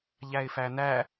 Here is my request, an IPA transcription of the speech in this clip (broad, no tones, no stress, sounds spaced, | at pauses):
ʎ æ ɪ̯ f æ n æ